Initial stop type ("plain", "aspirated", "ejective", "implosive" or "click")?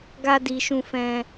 plain